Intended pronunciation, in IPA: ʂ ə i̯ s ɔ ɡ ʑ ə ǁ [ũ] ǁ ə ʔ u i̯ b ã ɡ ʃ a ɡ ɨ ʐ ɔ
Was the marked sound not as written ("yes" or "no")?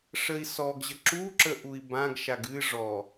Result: yes